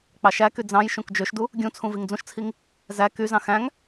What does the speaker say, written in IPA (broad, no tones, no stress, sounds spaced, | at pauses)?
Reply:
k͡p ɑ ʃ æ k y d͡z ɑ̃ j ʃ ũ k d͡ʒ ø ʃ d u | ɡʲ ũ t͡sʰ ũ v i ŋ d͡z ũ ʃ t͡sʰ i ŋ | z æ k y z ɑ̃ x æ̃ ŋ